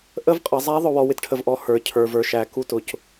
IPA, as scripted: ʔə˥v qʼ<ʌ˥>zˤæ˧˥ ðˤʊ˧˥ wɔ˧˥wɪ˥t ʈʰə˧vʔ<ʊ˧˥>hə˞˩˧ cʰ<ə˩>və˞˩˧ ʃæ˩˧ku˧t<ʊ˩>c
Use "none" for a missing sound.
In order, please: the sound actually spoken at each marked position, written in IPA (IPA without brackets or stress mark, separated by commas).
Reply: ʌ˩˧, ɔ˧˥, ə˞˩, ʊ˩